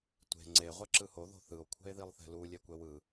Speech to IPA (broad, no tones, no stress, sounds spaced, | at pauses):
tʷ e̤ ŋ͡ǀ e ʁʷ ɛ ǁ ɯ h o ð o̤ θ ɯ o̯ kʷʰ ɛ̤ e̯ ð i lˠ θ ɛ̤ l u lʲ ɛ kʷ ɛ w ɯ